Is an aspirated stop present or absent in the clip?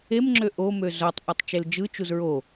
absent